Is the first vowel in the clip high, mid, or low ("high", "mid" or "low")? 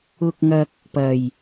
high